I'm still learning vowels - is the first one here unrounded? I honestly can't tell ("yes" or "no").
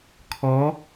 no